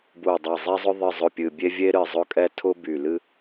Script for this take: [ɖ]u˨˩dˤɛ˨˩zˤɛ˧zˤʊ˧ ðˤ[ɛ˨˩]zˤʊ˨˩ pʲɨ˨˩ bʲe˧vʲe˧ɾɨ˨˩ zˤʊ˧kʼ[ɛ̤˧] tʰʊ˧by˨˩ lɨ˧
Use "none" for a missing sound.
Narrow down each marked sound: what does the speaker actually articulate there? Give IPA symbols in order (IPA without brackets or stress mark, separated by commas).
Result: b, ɨ˨˩, ɛ˧